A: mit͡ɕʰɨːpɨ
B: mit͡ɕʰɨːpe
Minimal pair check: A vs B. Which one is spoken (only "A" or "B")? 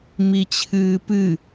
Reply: A